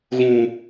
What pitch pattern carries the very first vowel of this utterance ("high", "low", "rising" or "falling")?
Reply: low